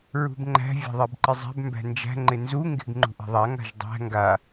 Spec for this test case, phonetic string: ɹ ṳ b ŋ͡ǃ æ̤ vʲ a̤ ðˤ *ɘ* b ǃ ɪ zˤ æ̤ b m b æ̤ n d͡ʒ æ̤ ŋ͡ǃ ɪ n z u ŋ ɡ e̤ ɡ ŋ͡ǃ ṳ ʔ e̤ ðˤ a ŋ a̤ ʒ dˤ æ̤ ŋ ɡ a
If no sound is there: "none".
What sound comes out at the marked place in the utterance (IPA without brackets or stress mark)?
e